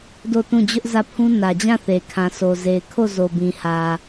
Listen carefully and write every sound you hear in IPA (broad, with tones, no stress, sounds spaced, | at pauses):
d o˦˨ t ũ˦˨ d͡ʑ ʊ˦ ʔ z ä˦˨ pʰ ũ˦ n ä˨ d͡ʑ ã˦˨ θ e˨ kʰ ã˨ s o˨ z e˨ ɪ̯ kʰ o˦˨ z o˨ b ĩ˨ h ä˨